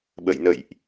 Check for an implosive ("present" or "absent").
present